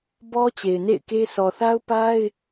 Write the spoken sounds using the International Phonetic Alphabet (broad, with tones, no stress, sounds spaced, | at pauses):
b ɔ˦ t͡ɕ e˨ ɪ̯ n ḛ˦˨ ɪ̯ k e˦ sʰ ɔ˨ θ a˦ ʊ̯ p a˦ ɪ̯